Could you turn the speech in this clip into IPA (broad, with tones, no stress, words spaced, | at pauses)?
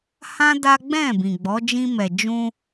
hã˦ da˦ ɡ͡bɛ̃˦˨bĩ˨ ɡ͡bɔ˨˦ d͡ʒĩ˧mɛ˨ d͡ʒũ˧